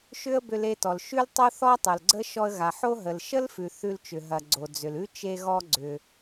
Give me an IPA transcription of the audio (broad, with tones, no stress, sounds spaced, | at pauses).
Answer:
ʃ ʏ˥ ə̯ b ʏ˧ l e˧ t ɔ˩ l ʃ ʉ˥ l tˤ o˥ θ ɔ˥ tˤ o˩ l ɡ͡ǀ ə˥ ʃ ɔ˧ ə̯ ɣ a˩ ħ o˥ ɦ ə˩ l ʃ ə˥ l f ʉ˩ θ ʉ˧ l t͡ʃ ʏ˩ ɦ ɐ˩ ɡ͡ǀ o˩ d͡z ʏ˩ l ʉ˥ t͡ʃ e˧ ɣ ɔ˧ ɡ͡ǀ ʏ˩